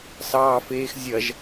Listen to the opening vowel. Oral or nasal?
oral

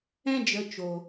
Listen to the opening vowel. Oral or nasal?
nasal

